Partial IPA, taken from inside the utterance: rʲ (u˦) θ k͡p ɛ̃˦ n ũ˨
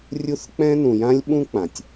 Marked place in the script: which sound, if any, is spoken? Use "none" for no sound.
u˦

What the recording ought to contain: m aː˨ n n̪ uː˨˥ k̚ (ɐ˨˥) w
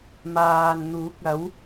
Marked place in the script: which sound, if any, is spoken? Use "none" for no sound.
ɐ˨˥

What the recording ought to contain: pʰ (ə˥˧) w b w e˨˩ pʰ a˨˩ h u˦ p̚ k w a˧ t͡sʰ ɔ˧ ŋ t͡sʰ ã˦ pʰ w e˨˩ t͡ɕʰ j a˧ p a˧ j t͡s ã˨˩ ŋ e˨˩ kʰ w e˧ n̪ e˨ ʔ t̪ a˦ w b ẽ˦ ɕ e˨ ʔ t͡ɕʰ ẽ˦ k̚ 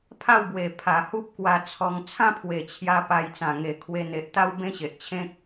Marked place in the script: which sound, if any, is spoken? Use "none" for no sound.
a˥˧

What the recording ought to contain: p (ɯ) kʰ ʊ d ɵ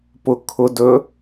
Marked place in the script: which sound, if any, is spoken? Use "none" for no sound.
ʊ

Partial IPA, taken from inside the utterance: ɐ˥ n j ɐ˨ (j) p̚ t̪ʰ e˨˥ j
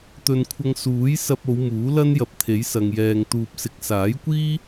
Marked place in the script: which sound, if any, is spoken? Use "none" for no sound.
none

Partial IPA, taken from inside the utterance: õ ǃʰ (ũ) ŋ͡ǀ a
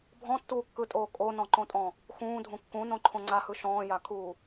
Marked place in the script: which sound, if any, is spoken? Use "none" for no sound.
õ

